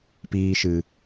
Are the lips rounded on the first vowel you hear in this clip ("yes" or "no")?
no